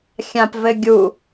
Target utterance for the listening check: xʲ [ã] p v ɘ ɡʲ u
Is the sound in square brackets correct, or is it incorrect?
correct